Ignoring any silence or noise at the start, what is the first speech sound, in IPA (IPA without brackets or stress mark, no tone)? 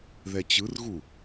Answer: ð